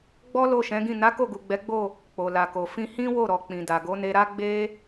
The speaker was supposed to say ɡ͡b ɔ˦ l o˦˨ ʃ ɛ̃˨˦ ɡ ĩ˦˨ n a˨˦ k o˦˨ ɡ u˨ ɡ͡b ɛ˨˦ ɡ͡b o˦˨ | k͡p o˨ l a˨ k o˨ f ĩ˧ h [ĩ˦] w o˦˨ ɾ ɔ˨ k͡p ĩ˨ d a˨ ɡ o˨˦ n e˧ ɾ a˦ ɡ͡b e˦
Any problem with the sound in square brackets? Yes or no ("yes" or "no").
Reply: no